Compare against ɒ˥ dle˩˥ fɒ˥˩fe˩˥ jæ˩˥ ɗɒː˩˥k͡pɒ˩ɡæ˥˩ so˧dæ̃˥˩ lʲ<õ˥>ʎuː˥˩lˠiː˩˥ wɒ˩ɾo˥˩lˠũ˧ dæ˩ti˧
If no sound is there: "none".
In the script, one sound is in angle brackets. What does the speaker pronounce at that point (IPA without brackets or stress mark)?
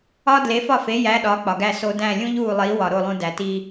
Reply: ũ˥